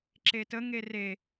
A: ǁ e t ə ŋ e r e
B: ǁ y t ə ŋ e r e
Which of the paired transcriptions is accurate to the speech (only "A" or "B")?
A